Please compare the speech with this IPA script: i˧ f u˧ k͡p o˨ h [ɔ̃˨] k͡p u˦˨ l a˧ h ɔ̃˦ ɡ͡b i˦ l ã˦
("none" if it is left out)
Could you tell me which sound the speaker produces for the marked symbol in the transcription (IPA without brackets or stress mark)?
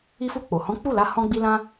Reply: ɔ̃˨˦